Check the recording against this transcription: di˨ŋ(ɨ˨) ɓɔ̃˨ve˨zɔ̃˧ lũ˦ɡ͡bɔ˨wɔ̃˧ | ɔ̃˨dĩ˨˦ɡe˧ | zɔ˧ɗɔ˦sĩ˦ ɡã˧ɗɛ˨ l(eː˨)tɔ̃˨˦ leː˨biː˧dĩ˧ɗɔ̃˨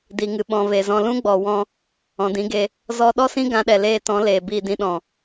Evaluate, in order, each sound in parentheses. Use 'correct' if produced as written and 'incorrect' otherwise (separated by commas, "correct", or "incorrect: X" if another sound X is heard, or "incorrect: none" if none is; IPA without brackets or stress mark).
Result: correct, incorrect: eː˧